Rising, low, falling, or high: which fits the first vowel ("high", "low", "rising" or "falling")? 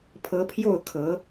rising